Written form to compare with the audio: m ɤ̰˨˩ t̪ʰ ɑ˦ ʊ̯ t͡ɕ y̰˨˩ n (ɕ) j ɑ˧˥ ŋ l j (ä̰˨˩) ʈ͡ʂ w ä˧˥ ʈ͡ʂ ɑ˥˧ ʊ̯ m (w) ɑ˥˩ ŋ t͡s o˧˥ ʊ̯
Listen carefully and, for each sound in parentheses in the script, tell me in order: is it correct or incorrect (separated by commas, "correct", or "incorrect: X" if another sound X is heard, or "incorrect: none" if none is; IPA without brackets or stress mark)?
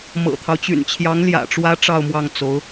incorrect: t͡ɕʰ, correct, correct